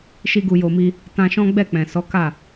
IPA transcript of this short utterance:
ʃ i˧ ɡ u˨ j o˨ m i˧ | t ã˧ ʃ ɔ̃˦ ɡ͡b ɛ˦˨ k͡p ɛ̃˨ s ɔ˨˦ k a˦˨

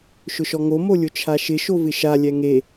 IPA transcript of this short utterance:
ʃ ʊ ʃ ɔ ŋ o m o lʲ ʊ t͡ʃʰ a ʃ ɪ ʃ o v ɪ ʃ a lʲ ɛ ŋ e

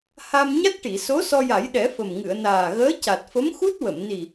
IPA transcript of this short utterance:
h a˧ m ɲ a˦˥ t̚ ʈ i˨˩˨ s o˧˥ s ɔ˧ j a˨˩˦ j ɗ ɛ˨˩˦ f ə˨˩ m ŋ ɨ˨˩˨ ə̯ n aː˨˩ ɣ əː˧˥ c a˨˩ t̚ f ə˧˥ m x u˦˥ t̚ w ə˨˩˨ m n i˨˩

